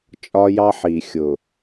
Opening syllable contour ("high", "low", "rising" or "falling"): high